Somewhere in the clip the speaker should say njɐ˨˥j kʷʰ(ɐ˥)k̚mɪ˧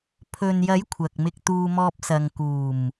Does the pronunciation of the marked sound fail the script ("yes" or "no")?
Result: yes